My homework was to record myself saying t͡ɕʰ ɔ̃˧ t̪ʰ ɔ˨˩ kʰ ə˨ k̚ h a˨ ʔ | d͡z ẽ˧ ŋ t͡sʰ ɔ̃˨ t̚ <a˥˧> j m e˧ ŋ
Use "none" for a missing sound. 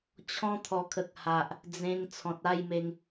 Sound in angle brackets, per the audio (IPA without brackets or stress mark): a˥˧